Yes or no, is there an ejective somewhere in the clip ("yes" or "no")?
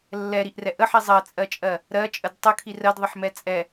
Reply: yes